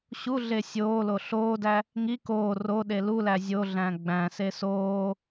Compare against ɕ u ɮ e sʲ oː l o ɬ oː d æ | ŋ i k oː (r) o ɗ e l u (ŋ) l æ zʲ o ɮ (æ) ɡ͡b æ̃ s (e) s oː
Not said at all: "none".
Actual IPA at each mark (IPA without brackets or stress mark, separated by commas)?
r, none, æ̃, e